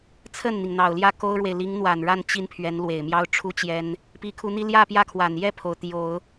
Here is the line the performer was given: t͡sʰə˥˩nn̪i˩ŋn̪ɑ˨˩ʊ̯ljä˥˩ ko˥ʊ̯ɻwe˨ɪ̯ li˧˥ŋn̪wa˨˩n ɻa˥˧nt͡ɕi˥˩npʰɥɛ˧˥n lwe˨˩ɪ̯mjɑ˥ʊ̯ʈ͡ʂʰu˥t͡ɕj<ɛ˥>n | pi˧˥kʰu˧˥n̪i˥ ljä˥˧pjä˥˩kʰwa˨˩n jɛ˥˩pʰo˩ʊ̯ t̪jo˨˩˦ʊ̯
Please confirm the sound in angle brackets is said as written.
yes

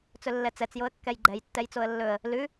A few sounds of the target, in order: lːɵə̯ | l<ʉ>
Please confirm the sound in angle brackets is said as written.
yes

